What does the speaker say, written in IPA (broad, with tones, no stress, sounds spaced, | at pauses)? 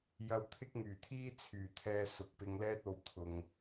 j ɐ˧ w t̪ʰ ɪ˥ k̚ ŋ yː˨˩ t̪ʰ iː˥ t͡sʰ yː˨˩ t̪ʰ ɛː˧ s ʊ˨ k̚ p ɪ˧ ŋ l ɛː˥ t̚ o˨ w t̪ʰ ʊ˨ ŋ